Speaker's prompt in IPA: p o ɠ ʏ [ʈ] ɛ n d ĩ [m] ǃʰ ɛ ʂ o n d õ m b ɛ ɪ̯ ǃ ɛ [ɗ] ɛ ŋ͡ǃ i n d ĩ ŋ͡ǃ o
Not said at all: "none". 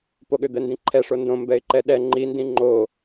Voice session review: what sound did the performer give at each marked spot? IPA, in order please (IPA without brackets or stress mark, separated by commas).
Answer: d̪, none, ɗ